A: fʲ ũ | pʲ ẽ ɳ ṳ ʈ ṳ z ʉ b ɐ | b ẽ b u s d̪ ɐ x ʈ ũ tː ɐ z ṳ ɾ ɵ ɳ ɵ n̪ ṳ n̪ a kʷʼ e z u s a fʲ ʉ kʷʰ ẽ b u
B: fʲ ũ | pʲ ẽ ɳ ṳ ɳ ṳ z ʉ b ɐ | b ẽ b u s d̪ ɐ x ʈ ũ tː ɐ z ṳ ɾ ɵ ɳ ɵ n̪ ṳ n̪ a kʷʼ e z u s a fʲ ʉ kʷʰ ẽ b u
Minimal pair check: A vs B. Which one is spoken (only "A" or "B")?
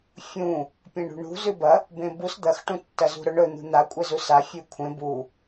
B